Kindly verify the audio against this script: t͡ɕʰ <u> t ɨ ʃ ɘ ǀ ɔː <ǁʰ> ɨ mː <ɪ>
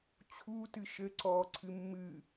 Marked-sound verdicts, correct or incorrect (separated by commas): correct, incorrect, incorrect